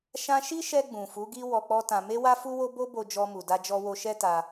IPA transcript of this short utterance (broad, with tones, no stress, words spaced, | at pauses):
ʃã˧ʃi˦ʃɛ˧ ɡ͡bũ˨fu˨˦ɡi˦ wɔ˧k͡pɔ˦tã˧ me˦wa˦fu˦wo˦ bo˦bo˧ d͡ʒɔ˧mu˨da˧d͡ʒɔ˧ wo˧ʃɛ˦ta˧